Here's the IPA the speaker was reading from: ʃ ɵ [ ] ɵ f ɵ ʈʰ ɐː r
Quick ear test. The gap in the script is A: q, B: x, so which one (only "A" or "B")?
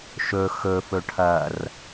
B